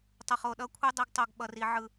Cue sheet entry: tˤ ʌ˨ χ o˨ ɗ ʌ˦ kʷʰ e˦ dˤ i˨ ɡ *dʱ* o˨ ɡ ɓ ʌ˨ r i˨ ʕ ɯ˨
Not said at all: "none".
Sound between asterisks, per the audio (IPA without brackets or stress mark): tˤ